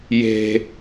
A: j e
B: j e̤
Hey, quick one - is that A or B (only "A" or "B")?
B